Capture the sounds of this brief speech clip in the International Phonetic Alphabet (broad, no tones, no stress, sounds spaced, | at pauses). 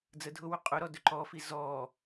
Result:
d͡z ə dʱ ʊ w ɵ qʼ ʊ ɾ ɔ d ɵ ǃ ɔ f i z ɔ